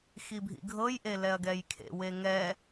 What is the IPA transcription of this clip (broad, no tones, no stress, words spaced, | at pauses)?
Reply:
xibʱḭɡʱɤj ʔelɛɐ̯ɡɛjkʰḛ weŋɛ